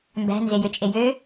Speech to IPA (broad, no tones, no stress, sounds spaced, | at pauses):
m b æ̤ n z e j ø t͡ʃʼ e j ø